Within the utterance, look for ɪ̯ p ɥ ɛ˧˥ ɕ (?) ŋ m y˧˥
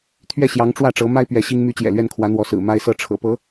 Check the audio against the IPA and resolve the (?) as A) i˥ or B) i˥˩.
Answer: A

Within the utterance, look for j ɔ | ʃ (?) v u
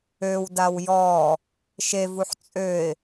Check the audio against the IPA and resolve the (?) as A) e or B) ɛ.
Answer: A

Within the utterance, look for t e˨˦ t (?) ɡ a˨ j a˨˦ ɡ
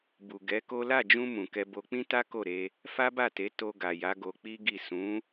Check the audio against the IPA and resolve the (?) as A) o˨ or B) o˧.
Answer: B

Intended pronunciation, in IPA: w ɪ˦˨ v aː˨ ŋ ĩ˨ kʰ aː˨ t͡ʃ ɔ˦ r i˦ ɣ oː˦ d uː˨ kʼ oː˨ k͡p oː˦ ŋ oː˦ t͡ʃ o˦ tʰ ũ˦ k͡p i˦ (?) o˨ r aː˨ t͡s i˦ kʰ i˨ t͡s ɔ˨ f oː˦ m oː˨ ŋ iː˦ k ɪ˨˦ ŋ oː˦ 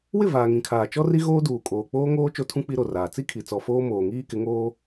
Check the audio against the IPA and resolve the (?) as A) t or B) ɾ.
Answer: B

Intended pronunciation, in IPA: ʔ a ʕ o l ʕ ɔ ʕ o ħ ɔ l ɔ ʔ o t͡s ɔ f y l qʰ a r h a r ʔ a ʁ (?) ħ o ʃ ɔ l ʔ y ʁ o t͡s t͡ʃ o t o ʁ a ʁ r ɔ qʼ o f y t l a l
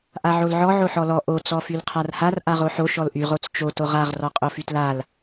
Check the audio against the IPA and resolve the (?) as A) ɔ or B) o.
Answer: B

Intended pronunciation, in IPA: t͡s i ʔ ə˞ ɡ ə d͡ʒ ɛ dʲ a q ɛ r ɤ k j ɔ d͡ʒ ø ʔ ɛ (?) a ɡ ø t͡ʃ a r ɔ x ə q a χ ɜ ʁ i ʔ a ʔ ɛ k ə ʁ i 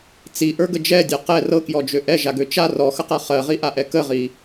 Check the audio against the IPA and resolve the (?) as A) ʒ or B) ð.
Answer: A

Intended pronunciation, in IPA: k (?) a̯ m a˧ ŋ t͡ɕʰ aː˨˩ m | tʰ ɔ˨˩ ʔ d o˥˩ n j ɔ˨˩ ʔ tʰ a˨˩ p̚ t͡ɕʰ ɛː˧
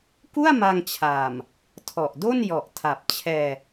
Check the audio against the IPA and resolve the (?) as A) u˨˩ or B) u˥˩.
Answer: B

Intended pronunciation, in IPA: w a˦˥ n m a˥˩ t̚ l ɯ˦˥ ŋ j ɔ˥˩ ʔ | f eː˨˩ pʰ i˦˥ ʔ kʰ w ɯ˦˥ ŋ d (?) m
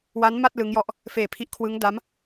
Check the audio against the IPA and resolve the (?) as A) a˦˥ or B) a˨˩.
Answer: A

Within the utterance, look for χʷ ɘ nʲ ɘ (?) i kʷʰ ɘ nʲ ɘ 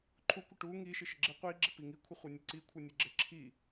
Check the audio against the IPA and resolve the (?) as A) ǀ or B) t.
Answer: A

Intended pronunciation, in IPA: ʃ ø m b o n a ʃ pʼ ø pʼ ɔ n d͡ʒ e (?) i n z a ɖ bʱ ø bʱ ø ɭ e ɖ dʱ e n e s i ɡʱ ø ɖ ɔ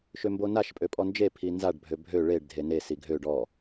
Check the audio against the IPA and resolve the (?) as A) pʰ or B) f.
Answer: A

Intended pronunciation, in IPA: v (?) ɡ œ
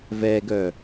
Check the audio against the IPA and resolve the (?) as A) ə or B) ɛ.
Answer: B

